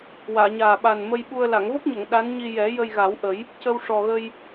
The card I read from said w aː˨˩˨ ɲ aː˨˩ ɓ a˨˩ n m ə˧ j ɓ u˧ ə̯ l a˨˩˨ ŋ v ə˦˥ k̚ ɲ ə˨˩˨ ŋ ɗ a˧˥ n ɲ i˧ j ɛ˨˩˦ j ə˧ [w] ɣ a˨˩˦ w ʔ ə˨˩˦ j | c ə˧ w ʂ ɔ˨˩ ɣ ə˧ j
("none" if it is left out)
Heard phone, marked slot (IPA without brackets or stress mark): j